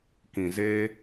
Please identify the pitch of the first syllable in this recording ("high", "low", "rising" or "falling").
low